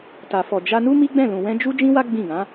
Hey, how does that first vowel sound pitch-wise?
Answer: low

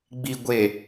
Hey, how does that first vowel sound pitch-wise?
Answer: low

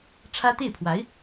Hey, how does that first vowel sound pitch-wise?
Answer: high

